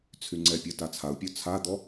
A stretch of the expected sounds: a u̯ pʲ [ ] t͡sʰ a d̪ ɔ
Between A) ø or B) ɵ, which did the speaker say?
A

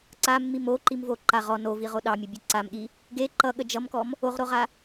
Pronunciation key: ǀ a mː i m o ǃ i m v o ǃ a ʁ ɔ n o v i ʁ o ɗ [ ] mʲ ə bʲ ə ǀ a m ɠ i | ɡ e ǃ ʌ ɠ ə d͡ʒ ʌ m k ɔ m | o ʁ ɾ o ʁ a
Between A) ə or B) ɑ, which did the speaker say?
B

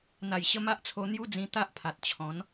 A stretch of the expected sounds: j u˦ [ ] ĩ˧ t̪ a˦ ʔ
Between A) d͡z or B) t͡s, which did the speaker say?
A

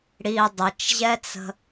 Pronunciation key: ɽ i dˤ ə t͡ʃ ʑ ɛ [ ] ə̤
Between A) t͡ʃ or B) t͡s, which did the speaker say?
B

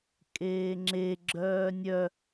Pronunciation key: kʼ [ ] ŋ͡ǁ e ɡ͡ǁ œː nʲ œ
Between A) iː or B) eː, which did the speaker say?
B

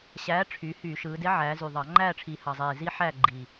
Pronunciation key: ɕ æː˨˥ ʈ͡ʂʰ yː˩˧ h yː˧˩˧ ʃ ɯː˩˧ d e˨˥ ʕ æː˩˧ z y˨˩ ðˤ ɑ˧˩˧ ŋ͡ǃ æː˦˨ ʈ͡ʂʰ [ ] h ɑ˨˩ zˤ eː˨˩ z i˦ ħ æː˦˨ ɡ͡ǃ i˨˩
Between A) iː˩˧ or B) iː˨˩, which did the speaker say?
B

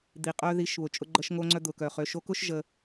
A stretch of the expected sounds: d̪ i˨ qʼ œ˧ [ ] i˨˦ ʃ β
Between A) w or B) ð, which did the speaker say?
B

